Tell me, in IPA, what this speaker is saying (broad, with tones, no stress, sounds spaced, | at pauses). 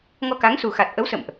ŋ ɔ˧ k a˨˦ ŋ s u˨˩ x a˨˩ t̚ ʔ ə˨˦ w s ə̰˧˨ m ʔ